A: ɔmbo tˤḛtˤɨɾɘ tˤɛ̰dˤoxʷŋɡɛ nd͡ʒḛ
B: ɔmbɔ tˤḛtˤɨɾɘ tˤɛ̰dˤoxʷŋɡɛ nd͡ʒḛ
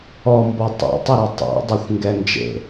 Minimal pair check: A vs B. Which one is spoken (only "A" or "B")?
B